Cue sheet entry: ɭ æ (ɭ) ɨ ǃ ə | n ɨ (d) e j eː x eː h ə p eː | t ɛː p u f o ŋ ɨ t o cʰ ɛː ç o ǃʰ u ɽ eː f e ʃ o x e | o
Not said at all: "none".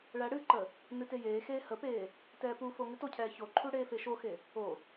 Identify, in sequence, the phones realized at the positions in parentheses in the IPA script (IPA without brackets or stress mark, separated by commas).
ɽ, t